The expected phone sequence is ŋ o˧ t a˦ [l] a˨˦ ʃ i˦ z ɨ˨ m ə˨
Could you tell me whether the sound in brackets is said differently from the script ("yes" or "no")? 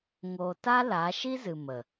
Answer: no